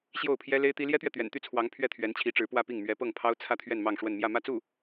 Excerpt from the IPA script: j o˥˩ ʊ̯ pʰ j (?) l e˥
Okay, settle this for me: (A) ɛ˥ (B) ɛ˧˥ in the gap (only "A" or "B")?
A